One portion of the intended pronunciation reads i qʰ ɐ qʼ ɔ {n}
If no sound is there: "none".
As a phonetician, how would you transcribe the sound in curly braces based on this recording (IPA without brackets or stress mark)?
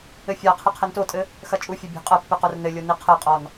n